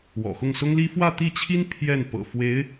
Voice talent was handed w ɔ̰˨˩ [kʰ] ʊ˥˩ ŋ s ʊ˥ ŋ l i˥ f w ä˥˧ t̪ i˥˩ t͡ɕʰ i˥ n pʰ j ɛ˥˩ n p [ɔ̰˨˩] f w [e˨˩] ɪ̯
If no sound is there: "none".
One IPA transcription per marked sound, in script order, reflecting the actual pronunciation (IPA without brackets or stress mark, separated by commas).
x, ɤ̰˨˩, e˧˥